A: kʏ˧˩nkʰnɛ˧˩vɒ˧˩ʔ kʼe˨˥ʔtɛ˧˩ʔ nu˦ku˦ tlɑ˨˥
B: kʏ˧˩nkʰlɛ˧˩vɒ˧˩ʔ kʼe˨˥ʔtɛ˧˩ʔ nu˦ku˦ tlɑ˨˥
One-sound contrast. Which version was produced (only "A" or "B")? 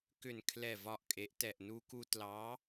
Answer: B